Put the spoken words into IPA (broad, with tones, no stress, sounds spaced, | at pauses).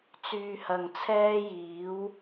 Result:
t͡s yː˧ h ɐ˨ ŋ t͡sʰ ɛː˥ j iː˨˥ w